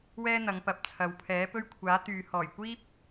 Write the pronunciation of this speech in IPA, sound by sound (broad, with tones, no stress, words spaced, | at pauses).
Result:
wɛː˥ n̪ɐ˨˧ŋpɐ˨p̚ t͡sʰɐ˨wpʰɛː˨˥ pɵ˥ɥkʷʰaː˨˥t̪yː˨ hɔː˨˩jkʷiː˥p̚